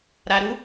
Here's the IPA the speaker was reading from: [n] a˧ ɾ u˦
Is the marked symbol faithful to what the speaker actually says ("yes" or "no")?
no